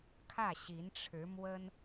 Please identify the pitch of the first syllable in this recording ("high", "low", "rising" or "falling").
falling